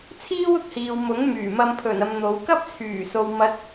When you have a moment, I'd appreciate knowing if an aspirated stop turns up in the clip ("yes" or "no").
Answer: yes